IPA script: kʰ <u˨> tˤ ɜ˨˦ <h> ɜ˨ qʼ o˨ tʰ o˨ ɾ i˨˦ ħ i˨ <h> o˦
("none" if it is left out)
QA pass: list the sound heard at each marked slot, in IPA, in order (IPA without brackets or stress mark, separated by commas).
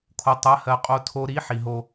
o˨, h, ɦ